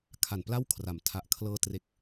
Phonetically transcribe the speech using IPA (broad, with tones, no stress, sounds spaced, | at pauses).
kʰ a˨˩ n p l a˥˩ w kʰ r a˩˦ m tʰ a˨˩ ʔ kʰ l ɤː˧ t r e˦˥ k̚